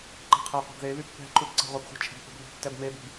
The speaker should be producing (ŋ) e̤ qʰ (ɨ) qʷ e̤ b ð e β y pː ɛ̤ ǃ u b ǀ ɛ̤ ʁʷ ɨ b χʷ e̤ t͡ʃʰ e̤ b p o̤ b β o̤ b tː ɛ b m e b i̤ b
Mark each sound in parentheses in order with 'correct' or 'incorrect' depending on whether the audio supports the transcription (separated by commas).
incorrect, incorrect